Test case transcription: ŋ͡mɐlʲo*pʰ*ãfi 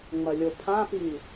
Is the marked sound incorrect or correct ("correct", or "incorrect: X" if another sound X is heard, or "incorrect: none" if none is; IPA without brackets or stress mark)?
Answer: correct